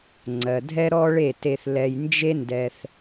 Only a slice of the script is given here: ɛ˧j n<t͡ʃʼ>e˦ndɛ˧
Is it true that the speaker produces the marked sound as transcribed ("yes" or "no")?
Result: no